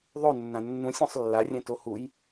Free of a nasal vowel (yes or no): no